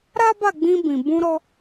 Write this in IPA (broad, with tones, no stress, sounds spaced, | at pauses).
ɾ a˦ b a˦˨ ɡ͡b ĩ˧ b ĩ˨ b ũ˧ ɾ ɔ˧